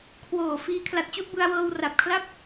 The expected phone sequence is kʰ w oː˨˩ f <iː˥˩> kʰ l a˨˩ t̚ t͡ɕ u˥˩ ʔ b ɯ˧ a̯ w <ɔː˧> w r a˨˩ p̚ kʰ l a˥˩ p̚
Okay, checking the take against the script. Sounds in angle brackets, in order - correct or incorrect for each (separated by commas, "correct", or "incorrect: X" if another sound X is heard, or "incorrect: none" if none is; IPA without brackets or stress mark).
incorrect: iː˧, incorrect: ɤː˧